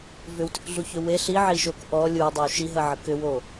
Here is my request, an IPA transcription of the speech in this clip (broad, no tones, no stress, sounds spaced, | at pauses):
v ʏ w t ʏ k ɮ u ç ʏ w e ɬ i ʕ i ʃ o k ʔ ɔ lʲ u dˤ ə w ʃ i ɦ ə ʕ ə k ʏ w o